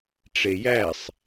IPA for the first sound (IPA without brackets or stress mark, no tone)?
ʈ͡ʂ